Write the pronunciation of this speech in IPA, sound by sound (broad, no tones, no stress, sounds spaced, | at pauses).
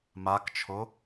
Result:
m a k t͡ʃʰ o